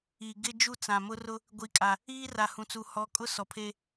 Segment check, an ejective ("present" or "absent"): present